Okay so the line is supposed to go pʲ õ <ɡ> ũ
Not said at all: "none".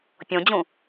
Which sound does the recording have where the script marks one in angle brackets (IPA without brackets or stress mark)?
d͡ʑ